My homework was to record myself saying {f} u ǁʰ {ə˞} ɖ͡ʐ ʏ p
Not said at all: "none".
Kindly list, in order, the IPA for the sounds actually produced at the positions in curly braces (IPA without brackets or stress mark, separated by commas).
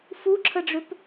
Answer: f, ə